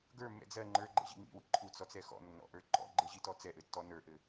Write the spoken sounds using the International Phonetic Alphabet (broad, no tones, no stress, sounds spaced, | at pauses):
ɡ ə˞ mː ɛ̰ d͡z ɜ ŋ͡ǃ ə˞ ɡ͡ǃ ɛ̰ ʑ ḭ ŋ ḭ w ḭ ǃʰ u t͡s ɔ t͡s ɛ x ɔ̰ nː ɔ̰ ʔ ə˞ ǃ ɔ̰ ɡ͡ǃ ɘ ʑ i t ɔ t͡s ɛ ʔ ɘ tː ɔ n ə˞ ʔ ɘ